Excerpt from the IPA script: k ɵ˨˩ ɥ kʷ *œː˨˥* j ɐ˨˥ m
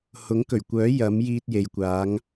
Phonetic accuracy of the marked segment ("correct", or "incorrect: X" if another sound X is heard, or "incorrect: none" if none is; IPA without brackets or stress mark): correct